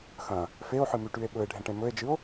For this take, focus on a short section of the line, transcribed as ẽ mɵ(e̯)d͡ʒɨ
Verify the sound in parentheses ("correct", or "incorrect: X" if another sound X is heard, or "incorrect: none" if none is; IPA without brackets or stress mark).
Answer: correct